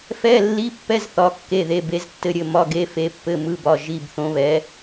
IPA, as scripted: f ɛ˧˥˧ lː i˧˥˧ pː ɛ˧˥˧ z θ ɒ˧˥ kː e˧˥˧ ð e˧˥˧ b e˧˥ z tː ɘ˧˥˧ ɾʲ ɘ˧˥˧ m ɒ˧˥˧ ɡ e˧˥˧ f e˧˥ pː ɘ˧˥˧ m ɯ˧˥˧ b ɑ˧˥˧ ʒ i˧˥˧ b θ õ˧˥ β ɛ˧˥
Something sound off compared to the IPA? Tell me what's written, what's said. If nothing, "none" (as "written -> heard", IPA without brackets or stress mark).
ɑ˧˥˧ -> ɒ˧˥˧